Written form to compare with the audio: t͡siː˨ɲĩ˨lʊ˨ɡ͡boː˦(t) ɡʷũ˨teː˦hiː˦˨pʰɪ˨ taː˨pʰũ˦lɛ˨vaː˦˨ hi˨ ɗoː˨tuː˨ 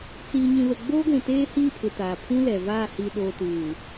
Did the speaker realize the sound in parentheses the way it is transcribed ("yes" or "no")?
no